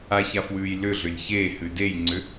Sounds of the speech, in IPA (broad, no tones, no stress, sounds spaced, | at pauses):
a ç a f w ʉː j l ʏ ɮ ʏ lʲ ç eː h ʉ d e j ŋ͡ǀ ʏ